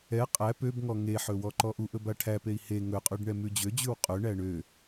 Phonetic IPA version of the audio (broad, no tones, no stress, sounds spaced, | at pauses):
ɛ qʼ æ p ø b ŋ ɔ ŋ e ħ ɵ w ɔ ǃ ɔ ʔ u ʔ ɵ b a ʈʰ æ p e i̯ h e ŋ ɵ qʼ ʉ ɖ ɳ ɛ m ʉ d͡ʑ ø d͡ʑ ʉ w qʼ ɵ ɳ æ ɳ ø